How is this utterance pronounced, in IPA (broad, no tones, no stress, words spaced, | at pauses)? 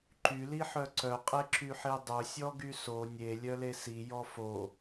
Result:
ǃyliħœ ǀœqʼeǁyħe dˤœsʲɔɡy so nʲelʲœle sijɔ fo